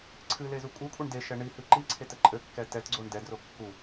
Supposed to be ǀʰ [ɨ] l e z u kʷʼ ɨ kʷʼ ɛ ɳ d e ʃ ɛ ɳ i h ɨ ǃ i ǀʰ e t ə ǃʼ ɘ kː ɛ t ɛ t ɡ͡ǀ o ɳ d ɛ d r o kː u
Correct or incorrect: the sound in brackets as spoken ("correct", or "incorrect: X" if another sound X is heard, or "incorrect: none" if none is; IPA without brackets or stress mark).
correct